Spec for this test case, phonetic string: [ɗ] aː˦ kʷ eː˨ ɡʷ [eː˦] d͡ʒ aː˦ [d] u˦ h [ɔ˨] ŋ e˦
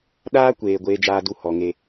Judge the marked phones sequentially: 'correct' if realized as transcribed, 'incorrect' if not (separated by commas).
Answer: correct, correct, correct, correct